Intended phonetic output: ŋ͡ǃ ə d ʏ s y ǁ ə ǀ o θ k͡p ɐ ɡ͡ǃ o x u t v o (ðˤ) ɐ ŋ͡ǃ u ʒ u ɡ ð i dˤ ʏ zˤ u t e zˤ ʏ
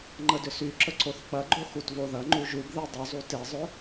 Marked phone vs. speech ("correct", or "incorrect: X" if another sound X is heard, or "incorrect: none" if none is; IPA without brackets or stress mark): incorrect: ð